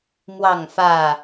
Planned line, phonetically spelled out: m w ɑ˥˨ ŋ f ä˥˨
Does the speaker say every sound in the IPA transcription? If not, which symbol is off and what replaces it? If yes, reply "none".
none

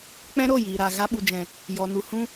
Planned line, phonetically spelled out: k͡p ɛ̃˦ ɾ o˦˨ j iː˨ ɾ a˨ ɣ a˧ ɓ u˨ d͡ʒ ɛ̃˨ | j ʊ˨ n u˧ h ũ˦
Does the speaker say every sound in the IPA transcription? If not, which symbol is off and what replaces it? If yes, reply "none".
ʊ˨ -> ɔ˨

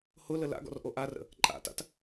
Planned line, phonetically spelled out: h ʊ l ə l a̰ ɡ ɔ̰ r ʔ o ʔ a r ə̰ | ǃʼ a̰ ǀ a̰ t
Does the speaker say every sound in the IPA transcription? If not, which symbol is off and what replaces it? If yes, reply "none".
ǀ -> t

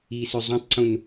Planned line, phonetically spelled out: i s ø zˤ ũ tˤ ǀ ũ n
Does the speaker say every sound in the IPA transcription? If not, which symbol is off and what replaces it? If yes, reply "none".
none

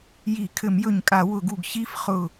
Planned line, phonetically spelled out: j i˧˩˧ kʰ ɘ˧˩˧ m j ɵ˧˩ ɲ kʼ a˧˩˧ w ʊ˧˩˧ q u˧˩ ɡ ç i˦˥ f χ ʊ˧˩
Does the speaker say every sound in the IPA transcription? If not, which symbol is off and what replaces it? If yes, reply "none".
q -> ɡ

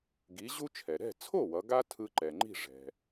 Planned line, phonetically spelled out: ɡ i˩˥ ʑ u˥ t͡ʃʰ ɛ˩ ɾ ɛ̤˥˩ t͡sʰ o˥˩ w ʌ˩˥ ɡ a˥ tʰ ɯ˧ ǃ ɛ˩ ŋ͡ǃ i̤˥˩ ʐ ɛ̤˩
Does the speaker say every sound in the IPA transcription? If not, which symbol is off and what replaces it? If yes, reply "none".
none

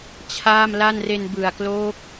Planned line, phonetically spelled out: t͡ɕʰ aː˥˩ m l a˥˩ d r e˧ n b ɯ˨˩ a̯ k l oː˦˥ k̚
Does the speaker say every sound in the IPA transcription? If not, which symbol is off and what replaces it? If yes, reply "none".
d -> n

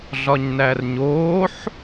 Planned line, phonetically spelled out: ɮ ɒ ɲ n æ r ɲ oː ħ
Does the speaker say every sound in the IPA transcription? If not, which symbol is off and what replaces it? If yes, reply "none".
none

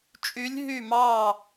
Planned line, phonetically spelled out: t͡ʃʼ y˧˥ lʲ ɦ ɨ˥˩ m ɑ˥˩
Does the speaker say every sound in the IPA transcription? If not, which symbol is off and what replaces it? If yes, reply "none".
ɨ˥˩ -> y˥˩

